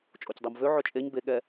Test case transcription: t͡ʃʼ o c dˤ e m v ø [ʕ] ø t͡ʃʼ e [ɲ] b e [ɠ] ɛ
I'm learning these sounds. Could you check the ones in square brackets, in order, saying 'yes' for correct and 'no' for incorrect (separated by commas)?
yes, yes, yes